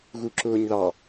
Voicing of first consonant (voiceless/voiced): voiced